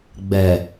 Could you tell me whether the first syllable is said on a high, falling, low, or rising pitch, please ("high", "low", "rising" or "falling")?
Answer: low